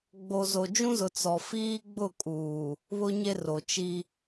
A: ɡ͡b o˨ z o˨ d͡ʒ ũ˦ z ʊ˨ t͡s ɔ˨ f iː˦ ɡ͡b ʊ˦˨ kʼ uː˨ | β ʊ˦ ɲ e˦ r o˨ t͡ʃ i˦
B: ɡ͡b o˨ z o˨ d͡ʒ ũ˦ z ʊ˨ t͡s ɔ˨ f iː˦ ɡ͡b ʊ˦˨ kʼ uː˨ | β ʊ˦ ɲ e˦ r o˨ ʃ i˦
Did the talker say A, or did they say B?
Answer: A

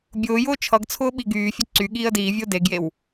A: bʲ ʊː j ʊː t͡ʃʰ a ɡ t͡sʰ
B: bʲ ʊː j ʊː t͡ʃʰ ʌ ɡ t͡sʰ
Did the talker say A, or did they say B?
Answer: B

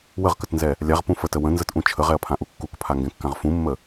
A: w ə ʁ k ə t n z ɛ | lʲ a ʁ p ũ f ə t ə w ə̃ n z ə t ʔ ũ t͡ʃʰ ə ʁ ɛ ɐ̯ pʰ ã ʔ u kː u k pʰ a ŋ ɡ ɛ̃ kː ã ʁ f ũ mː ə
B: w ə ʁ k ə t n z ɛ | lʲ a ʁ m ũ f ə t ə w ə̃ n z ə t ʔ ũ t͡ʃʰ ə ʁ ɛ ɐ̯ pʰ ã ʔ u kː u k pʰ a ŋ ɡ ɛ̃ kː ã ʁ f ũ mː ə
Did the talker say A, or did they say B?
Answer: A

